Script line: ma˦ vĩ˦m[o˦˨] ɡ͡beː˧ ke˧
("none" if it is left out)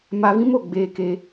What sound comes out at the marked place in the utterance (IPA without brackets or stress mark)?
o˦˨